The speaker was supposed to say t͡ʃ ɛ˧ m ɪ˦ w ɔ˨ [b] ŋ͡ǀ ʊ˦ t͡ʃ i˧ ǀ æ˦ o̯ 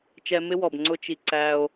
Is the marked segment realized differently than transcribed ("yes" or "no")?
no